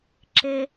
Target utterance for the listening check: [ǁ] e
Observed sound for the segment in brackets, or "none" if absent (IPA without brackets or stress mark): ǁ